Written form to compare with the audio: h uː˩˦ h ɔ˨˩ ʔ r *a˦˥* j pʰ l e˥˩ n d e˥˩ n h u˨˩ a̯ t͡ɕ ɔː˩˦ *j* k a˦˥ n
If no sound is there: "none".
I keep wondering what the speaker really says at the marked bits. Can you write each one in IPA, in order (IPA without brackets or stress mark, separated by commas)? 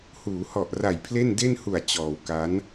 a˨˩, w